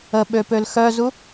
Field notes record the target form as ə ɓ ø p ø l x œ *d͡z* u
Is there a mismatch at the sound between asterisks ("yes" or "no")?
yes